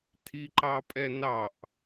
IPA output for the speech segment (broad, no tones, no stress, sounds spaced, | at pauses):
tʰ i ǃ ɑ pʼ ɛ n ɑ ʔ